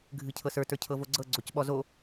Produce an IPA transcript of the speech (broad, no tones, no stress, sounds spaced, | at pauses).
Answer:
ɡʱ ɨ cʰ ɤ s ə˞ t ə˞ cʰ ɤ v o ɡ͡ǀ ɤ ɡ͡ǀ o c ɓ ɔ z o